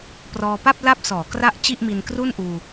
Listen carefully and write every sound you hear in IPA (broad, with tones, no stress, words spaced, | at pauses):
prɔː˧pa˥˩p̚ la˥˩p̚sɔː˩˦ kra˦˥ʔ t͡ɕi˥˩ʔmi˧nkru˥˩nʔuː˧